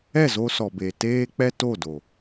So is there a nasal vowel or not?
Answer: no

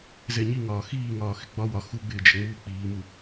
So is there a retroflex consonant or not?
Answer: no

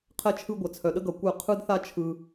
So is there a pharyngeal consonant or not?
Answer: no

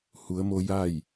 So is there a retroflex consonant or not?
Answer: no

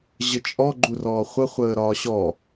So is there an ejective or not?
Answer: yes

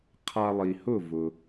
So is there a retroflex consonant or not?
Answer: no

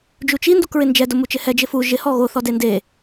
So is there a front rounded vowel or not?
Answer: no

